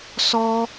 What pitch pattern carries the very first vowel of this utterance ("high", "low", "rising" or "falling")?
high